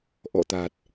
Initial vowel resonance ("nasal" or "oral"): oral